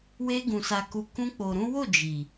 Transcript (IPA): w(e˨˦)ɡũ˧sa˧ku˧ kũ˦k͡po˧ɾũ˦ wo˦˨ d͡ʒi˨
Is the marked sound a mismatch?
yes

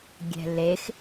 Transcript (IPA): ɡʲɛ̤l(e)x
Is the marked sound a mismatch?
no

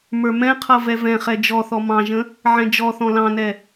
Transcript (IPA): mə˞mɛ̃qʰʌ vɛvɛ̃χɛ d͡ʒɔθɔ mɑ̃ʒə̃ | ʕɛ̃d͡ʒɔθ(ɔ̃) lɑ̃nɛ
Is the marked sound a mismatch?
no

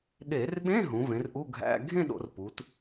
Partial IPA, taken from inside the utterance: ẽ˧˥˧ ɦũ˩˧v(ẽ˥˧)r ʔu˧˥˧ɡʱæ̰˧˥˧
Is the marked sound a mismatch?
yes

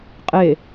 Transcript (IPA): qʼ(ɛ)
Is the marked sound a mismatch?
yes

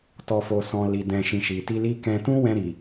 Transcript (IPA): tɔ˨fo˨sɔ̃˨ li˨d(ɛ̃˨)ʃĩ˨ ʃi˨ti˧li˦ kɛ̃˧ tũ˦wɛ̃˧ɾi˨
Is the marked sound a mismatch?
no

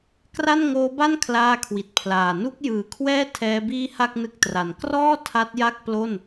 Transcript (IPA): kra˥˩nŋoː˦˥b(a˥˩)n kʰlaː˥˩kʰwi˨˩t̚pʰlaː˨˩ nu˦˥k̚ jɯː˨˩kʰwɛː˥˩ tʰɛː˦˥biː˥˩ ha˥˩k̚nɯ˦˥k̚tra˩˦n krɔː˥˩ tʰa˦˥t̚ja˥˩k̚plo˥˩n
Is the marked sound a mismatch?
no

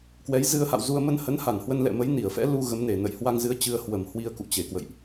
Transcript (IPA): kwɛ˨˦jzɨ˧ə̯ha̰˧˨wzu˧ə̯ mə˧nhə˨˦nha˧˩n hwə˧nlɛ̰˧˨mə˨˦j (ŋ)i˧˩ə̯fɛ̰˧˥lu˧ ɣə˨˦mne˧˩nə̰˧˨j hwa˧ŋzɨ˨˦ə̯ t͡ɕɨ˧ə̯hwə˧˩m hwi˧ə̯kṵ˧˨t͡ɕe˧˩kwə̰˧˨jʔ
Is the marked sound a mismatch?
yes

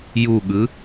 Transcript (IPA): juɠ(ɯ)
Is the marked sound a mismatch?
no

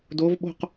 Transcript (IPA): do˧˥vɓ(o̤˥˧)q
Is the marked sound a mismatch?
no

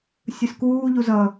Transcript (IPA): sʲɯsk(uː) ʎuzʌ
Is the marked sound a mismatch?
no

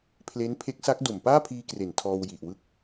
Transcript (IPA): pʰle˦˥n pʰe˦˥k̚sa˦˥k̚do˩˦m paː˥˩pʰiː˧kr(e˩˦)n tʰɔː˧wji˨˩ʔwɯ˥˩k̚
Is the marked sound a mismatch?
no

